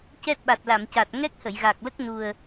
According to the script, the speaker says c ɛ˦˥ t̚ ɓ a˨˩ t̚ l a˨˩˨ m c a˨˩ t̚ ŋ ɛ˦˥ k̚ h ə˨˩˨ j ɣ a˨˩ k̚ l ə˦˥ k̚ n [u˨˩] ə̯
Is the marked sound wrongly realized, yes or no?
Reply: no